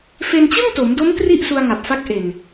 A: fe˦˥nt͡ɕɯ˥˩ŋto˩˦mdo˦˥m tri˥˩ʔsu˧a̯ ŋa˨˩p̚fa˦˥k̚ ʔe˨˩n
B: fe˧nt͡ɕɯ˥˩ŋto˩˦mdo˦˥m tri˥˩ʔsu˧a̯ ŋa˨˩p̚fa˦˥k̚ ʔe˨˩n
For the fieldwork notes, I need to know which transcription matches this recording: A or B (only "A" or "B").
B